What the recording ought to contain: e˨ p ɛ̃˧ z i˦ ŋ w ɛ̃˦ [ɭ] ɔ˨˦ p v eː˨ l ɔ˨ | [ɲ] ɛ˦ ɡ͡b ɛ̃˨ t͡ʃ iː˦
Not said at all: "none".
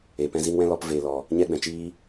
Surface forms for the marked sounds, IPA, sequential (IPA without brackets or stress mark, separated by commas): l, ɲ